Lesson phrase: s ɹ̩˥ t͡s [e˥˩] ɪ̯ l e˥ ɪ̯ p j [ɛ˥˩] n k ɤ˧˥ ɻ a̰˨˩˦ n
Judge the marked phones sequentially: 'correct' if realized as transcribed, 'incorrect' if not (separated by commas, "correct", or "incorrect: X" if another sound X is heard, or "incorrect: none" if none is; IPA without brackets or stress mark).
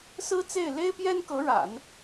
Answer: correct, incorrect: ɛ˥